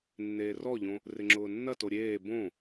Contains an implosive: no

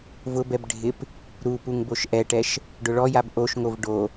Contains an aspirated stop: no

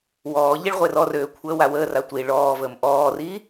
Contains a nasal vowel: no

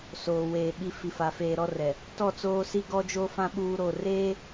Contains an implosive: yes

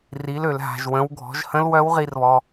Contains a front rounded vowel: yes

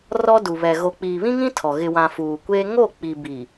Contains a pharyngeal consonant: no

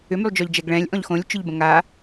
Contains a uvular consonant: no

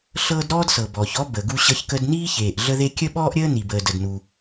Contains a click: no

